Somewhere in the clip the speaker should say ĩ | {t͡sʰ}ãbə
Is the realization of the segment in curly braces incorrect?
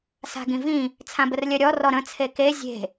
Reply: no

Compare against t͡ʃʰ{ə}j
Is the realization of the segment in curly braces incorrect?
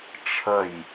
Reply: no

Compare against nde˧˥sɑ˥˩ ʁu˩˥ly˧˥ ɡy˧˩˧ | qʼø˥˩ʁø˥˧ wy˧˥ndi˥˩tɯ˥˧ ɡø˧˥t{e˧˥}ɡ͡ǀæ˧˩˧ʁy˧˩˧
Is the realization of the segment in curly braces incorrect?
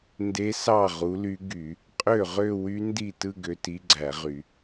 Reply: yes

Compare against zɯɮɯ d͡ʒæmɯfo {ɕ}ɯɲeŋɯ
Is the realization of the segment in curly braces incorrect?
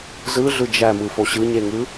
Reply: no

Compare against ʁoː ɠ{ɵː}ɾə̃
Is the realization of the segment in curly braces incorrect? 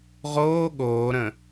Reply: yes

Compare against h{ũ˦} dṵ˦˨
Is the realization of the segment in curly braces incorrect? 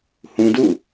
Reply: no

